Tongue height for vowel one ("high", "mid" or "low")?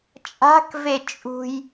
low